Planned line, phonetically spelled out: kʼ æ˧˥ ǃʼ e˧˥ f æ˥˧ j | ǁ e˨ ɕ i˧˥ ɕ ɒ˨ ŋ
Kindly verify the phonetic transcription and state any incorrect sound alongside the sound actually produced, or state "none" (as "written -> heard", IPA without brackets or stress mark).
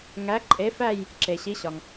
kʼ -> ŋ